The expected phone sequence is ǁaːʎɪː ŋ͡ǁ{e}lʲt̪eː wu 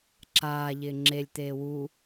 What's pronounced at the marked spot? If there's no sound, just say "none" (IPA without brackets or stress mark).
e